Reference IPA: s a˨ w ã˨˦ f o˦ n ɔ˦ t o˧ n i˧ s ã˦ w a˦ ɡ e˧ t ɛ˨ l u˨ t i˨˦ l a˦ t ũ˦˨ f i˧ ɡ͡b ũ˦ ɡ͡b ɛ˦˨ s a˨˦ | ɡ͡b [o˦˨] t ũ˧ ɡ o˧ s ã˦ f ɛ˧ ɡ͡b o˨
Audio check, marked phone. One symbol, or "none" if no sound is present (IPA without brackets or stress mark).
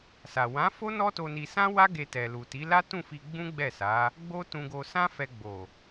o˦